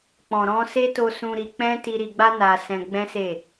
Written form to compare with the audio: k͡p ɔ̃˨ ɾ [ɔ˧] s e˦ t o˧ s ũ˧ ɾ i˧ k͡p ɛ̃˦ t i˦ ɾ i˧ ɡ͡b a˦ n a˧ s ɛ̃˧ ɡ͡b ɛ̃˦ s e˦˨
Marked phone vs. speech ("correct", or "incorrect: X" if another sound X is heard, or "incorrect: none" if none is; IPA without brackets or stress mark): incorrect: ɔ̃˧